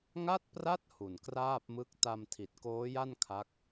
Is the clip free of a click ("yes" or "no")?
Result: yes